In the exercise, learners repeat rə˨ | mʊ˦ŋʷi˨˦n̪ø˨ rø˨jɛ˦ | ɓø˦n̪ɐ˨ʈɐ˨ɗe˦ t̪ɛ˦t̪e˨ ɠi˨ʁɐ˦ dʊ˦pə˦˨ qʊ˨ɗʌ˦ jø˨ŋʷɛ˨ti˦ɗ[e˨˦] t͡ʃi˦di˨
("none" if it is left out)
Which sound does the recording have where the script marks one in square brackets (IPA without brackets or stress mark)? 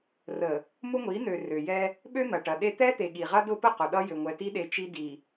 e˨˦